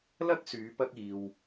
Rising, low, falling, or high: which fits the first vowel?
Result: high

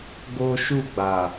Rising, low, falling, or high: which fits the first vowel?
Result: high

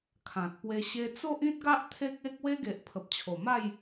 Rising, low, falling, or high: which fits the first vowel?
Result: low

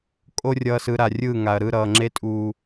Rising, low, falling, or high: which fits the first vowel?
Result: high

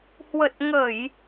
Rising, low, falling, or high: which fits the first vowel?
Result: low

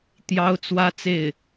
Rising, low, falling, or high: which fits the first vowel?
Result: high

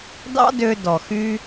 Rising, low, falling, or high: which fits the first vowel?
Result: high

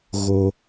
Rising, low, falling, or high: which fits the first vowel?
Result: high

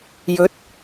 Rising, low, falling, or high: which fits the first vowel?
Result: rising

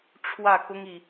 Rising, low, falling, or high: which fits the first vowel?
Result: falling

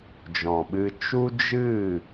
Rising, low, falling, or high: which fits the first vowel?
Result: low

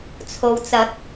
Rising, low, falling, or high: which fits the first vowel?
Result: low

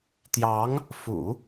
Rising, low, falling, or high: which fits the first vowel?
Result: rising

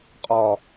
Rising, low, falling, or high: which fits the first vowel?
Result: low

